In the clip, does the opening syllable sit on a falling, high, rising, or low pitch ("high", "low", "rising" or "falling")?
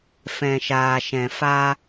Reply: low